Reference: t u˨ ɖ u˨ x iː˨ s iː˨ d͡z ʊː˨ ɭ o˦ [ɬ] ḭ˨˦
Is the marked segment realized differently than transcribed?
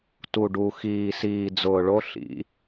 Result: no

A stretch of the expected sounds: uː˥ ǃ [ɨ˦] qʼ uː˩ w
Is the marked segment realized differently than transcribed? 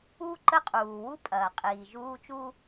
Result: yes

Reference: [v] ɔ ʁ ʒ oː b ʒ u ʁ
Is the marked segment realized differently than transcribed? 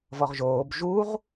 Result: no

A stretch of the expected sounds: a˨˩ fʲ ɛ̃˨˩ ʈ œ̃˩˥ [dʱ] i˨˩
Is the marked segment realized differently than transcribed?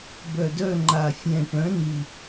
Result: yes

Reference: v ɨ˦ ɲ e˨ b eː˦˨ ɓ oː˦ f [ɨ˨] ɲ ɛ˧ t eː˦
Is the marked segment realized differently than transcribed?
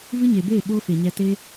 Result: yes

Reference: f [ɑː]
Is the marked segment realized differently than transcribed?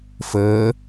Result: yes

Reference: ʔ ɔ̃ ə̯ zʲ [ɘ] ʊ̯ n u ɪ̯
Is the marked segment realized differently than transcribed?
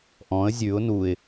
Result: yes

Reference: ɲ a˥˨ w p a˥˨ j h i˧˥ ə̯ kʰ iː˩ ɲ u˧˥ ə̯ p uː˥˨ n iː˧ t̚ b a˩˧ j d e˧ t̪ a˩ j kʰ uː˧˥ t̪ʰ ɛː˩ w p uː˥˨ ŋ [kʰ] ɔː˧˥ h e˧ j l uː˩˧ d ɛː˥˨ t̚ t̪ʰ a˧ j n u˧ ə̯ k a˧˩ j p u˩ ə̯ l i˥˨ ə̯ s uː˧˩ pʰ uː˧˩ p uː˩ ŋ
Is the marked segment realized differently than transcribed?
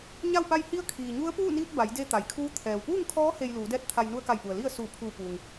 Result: no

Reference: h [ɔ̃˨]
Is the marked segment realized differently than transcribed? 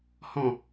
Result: no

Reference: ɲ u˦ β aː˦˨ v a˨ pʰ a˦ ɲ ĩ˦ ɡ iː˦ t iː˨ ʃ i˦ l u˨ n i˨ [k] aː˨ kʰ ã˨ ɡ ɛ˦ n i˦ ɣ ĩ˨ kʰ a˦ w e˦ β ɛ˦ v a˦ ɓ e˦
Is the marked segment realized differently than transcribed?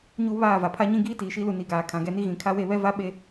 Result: yes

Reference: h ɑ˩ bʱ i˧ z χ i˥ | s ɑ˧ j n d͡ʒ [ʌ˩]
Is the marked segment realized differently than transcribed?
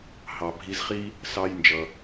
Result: no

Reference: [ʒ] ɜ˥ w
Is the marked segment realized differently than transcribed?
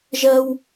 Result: no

